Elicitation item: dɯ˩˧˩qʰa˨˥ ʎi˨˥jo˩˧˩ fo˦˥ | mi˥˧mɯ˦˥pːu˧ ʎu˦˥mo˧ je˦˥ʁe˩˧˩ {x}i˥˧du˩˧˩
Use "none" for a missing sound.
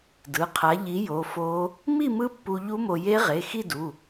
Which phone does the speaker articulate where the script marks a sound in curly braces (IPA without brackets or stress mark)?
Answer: x